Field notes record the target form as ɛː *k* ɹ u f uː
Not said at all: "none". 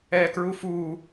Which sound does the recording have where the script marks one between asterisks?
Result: k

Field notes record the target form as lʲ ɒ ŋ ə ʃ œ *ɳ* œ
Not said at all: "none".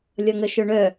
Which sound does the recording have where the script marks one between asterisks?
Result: ɳ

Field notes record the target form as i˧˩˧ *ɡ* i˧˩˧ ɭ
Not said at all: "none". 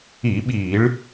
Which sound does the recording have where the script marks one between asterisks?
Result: ɓ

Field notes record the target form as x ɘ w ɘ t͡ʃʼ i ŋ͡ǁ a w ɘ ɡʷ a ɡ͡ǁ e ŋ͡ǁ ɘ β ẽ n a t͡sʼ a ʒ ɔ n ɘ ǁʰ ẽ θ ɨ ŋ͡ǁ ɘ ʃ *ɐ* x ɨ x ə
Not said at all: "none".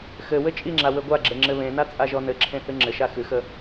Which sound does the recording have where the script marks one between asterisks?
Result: a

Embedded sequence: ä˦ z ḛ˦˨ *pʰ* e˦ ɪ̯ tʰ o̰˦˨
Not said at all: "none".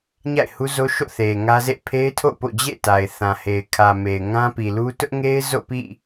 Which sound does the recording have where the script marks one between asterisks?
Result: pʰ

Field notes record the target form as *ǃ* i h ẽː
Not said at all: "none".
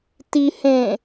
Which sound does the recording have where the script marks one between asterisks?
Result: t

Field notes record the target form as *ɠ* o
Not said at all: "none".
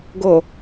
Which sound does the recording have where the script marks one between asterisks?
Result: ɡ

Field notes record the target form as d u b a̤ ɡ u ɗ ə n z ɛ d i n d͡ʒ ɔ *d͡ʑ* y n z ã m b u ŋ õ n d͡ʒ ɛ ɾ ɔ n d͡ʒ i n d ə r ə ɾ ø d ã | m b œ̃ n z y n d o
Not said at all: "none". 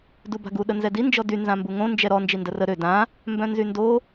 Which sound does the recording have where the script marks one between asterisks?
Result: d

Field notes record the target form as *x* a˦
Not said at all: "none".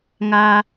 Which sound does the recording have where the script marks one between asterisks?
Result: ŋ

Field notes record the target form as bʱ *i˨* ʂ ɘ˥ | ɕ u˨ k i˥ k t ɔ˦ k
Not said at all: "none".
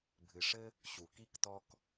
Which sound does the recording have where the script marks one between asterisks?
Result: ɨ˨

